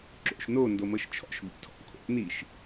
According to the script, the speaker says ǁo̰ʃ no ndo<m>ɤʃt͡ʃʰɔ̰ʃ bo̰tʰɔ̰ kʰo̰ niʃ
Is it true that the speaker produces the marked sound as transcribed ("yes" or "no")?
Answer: yes